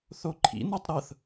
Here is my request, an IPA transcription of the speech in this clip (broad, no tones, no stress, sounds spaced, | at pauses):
θ o ǃʰ ḭ n o tˤ ɾ ɤ θ